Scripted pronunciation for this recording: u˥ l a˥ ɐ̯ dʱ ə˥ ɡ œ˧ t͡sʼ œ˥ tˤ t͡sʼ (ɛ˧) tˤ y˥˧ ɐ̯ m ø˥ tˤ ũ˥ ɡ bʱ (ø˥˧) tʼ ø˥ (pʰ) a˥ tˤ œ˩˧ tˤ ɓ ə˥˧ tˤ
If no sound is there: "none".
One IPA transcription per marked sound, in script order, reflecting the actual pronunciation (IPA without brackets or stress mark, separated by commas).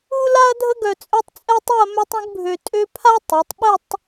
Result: ɛ˥, ø˧, pʰ